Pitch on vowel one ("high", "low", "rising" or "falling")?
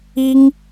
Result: high